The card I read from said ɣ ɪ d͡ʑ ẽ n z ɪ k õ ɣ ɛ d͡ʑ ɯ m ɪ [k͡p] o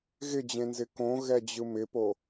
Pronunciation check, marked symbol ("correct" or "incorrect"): incorrect